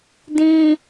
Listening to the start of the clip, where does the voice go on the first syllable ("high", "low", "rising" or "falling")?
low